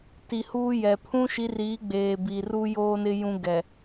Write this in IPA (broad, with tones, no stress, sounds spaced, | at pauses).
t i˨ h uː˦ j ɛ˨ pʰ ũ˦ ʃ i˨˦ r iː˨˦ ɡ͡b eː˨ b i˨ r u˦ j oː˦ n ɪ˦ j ũ˦ ɡ ɛ˨